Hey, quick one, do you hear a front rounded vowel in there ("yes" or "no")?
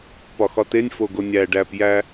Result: no